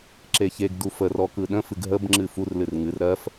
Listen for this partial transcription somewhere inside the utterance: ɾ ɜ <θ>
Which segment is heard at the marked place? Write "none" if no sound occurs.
f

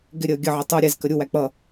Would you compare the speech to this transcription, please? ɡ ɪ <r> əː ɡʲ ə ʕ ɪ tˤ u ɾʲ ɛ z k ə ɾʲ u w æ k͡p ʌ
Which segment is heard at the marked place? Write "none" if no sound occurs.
ɾʲ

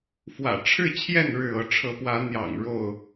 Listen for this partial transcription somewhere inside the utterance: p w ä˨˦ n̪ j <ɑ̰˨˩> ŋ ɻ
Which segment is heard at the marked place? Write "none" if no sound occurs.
ɑ̰˨˩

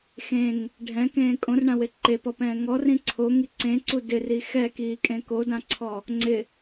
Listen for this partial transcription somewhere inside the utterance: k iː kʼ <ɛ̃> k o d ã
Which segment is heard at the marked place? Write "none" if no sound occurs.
ẽ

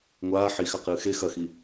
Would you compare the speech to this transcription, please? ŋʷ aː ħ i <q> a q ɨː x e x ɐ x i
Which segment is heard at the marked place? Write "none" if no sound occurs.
x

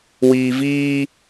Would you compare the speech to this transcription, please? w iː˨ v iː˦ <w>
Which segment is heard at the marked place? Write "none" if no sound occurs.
none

